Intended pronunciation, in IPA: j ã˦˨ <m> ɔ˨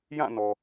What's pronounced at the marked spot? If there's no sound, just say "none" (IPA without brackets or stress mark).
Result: n